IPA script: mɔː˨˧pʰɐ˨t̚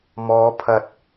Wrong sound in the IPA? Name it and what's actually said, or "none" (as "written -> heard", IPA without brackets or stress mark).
none